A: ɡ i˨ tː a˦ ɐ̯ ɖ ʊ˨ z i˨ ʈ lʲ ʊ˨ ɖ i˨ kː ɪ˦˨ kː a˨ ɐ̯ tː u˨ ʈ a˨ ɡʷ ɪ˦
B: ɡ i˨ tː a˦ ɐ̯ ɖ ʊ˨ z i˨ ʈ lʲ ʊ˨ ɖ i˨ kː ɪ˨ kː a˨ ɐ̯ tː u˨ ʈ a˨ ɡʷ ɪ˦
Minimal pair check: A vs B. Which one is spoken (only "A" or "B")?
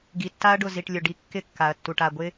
A